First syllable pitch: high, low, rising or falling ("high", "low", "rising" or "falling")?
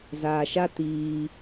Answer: low